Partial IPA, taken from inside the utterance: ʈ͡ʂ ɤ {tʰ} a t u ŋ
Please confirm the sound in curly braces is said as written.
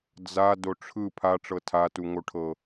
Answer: yes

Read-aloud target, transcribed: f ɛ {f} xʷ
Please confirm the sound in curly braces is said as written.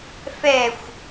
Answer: no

